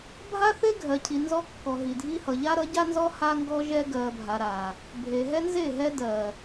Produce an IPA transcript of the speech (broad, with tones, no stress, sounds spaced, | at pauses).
bʱ a˦ θ e˦ ɡʱ ɜ˨ cʰ i˨ n z ɔ˦ kː ɔ˨ ɦ i˨ dʱ i˦ h ʌ˨ ʎ a˦ ɾ ʌ˨˦ ɟ a˦ n z ɔ˦ h a˦ ŋ ɡ ɔ˦ ʒ ɛ˦ ɡ ɜ˨ bʱ a˨ ɾ a˨ | bʱ e˨ ɦ ɛ˦ n z e˦˨ ɦ ɛ˦ d ɜ˨